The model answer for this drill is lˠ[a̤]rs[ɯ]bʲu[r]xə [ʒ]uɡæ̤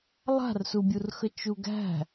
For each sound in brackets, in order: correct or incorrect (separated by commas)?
correct, incorrect, correct, incorrect